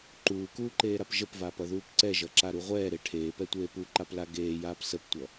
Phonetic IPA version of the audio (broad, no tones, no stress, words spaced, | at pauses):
ǃuːkuːǃeːɾap ʒəpvaːpʌðuːp ǀɛʒʌǁaɾu ʁʷɛːɾe ʈʰeːpɛtʷeː puǃapla ɡeːjaːp səptʷʌ